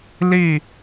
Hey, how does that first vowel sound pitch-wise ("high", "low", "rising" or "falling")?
falling